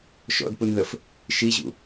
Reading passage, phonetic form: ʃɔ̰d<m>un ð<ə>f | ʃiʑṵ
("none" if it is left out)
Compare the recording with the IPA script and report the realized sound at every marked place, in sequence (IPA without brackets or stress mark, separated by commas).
p, ə